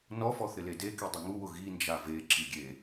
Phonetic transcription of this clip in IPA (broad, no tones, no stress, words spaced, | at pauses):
nɔfɔ θɪledeki dˤɪŋuwʊ ɣind͡ʒa ve ǁiɡʲe